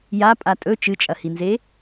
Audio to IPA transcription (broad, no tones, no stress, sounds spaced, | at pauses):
j a pʼ a tʼ ɵ t͡ʃ ɨ t͡ʃʼ ɐ h i n z e